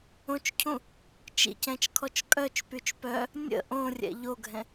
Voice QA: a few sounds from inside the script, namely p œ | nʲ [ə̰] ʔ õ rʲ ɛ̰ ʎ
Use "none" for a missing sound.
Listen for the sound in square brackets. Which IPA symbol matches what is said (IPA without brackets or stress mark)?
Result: ə̰